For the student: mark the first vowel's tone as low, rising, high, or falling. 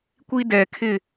high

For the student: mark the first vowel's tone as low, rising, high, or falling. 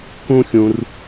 high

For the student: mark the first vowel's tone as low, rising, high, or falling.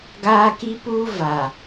high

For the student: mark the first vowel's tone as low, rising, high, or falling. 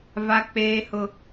high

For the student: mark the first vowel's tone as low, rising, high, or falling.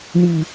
low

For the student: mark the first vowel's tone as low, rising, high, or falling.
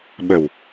low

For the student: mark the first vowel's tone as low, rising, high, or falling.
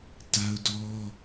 high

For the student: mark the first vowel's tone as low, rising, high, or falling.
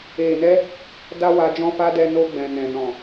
low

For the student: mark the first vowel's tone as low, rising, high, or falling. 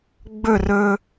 falling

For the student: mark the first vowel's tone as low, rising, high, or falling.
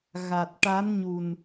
low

